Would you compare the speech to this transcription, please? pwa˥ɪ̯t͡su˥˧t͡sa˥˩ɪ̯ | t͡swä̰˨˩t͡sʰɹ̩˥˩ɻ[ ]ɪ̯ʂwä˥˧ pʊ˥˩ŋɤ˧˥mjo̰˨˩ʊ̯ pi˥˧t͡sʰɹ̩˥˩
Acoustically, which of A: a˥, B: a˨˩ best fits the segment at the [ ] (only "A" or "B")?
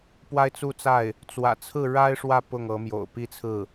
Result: A